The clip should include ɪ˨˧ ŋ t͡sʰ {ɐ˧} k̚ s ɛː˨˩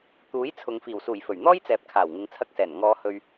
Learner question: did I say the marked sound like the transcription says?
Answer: yes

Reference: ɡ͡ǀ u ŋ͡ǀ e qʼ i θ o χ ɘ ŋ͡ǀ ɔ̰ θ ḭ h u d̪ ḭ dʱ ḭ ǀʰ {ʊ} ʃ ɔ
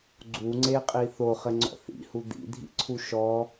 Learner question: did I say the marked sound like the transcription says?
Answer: no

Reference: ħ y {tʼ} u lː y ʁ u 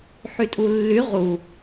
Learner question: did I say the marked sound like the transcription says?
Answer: yes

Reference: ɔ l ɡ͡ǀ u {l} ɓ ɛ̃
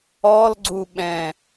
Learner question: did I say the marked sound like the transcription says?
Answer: no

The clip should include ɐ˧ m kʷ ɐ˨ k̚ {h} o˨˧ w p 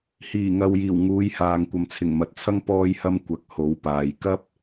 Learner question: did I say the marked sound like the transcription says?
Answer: yes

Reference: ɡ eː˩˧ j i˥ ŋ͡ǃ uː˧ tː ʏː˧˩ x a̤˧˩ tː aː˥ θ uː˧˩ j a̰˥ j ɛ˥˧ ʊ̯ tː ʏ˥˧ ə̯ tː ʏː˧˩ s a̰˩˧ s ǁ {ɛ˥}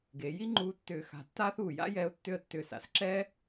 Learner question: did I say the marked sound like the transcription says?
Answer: no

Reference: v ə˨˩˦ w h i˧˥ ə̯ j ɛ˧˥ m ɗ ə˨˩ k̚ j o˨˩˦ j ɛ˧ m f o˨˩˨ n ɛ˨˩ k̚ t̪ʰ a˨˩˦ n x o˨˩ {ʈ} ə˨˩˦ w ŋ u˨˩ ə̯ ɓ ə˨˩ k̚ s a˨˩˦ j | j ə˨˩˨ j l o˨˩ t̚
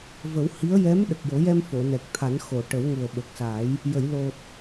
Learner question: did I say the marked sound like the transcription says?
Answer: yes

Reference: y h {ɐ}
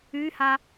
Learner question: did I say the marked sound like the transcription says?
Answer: no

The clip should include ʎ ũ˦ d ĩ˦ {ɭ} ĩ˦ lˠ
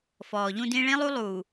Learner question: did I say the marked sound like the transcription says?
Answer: yes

